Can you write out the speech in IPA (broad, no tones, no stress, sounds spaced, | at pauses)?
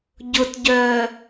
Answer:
ɟ ʊ t ɟ œː